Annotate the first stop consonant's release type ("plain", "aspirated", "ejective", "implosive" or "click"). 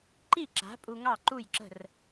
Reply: click